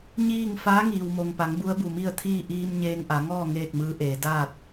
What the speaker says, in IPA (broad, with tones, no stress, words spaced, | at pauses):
ɲiː˥˨ŋ faː˧˥ŋiː˩wmo˩ŋpa˩˧ŋ bu˧˥ə̯bu˧˩mi˥˨ə̯t̪ʰiː˥˨ ʔiː˧m ɲeː˧ŋʔa˩˧ŋɔː˥˨ ŋeː˥˨k̚mɯː˧˥ʔeː˩˧ daː˥˨t̚